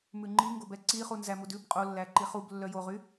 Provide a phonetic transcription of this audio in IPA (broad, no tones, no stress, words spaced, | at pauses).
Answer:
mʉŋ͡ǃiŋɡob ɛǀiχu nzæmudʉb qʼolːæǃi χublːœ joʁy